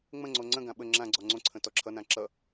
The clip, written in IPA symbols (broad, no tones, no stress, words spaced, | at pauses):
ŋ͡mə̃ŋ͡ǀo ŋ͡ǀə̃ɡã ɓə ŋ͡ǁã ɡ͡ǀɔŋ͡ǀõǀʰə̃ tɔǁʰʌnã ǁʌ